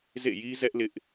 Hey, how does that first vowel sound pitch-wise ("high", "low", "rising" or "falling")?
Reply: falling